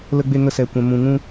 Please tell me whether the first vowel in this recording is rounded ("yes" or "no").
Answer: no